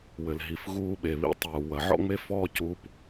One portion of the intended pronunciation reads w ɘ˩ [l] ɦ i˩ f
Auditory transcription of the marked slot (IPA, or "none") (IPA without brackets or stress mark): l